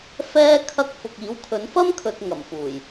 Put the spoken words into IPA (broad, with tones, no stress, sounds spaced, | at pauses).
f ɛː˧ kʰ ɐ˧ k̚ f ʊ˨ k̚ iː˨˥ w kʰ ɵ˨˥ n f ɐ˥ m kʰ ɵ˨ t̚ ŋ ɐ˨˩ m f uː˨˩ j